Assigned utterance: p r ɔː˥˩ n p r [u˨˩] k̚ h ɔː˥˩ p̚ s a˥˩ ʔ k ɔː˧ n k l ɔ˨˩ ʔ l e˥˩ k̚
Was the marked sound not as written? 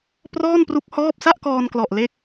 yes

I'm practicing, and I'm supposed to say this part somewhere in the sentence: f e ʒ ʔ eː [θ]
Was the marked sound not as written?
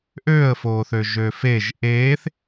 no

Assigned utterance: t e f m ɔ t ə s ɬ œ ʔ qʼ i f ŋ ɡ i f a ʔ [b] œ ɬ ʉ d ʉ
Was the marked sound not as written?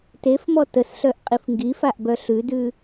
no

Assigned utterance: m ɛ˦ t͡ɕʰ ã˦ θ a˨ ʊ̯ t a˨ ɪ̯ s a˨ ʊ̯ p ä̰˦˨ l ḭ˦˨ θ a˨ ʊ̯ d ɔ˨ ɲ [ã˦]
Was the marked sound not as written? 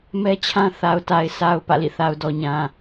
yes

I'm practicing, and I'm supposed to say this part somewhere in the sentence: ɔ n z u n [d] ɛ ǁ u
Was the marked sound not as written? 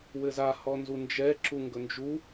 yes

